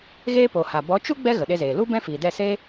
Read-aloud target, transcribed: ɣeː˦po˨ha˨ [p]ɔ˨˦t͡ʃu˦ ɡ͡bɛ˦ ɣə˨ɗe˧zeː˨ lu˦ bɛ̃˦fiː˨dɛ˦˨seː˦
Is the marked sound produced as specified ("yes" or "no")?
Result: no